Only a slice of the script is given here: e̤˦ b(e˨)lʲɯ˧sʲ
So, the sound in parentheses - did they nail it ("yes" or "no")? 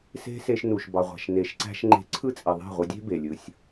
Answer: yes